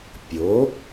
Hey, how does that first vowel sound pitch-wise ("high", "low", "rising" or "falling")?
rising